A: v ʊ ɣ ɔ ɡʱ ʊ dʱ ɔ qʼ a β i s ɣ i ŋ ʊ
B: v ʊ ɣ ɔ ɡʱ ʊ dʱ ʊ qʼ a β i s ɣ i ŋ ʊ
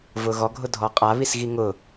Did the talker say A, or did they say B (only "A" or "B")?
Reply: A